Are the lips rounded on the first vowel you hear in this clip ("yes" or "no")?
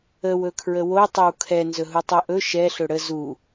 no